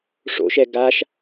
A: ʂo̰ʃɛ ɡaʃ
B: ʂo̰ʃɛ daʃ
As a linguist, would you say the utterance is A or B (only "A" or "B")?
A